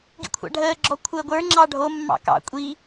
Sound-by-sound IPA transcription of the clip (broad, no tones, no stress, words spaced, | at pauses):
ɡḭkʷʰɑ̰ɖʱəː ɡ͡ǁɔkʷʰəːɡʷə˞ ŋ͡ǁɑɖʱo mːɑ̰kɑ̰ kʷʼi